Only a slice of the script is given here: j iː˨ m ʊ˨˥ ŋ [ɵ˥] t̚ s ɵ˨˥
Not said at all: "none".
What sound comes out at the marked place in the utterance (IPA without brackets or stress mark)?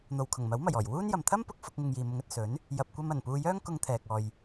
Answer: ɵ˨